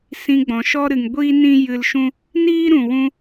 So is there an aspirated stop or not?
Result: no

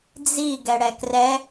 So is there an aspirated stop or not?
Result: no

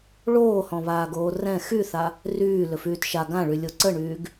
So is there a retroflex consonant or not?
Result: yes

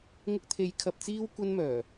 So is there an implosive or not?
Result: no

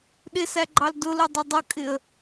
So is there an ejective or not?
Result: yes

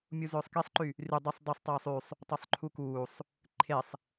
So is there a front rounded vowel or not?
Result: yes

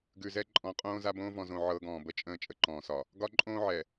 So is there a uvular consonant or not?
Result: yes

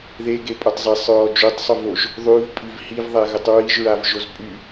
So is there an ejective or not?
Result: yes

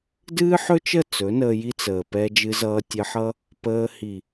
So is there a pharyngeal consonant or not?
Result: yes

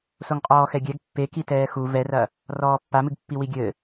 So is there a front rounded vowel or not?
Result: no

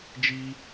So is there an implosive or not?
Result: no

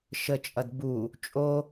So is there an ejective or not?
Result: yes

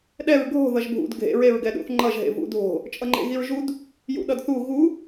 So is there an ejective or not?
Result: yes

